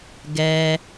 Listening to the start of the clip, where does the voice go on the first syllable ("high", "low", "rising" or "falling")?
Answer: low